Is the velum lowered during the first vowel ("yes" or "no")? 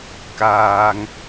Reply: no